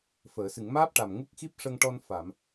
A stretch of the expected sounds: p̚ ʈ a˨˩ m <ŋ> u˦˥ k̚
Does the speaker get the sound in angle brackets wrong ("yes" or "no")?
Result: no